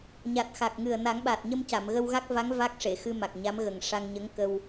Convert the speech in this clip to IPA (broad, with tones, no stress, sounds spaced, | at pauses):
ɲ a˨˩ t̚ x a˨˩ k̚ ŋ ɨ˨˩ ə̯ n a˨˩˦ ŋ ɓ a˨˩ t̚ ɲ ə˧ m c a˨˩˨ m ɣ ə˧ w ɣ a˦˥ k̚ v a˧˥ ŋ v a˦˥ k̚ ʂ e˨˩˨ x ɨ˧ m a˨˩ k̚ ɲ a˧˥ m ɣ ə˨˩ ŋ ʂ a˧ ŋ ɲ ə˧˥ ŋ k ə˧ w